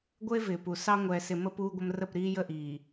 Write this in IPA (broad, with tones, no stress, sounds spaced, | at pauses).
ɡʷ ɘ˦ e̯ v ɪː˨ p u˨ s ɑ˦ ŋʷ ɛː˨ s ɪ˨ m ə˦ p uː˦ ɡʷ ə˦ m r ə˦˨ p ɾ iː˦ j ə˦˨ ʔ iː˨